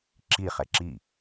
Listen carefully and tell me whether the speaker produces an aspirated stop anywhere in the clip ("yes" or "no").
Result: no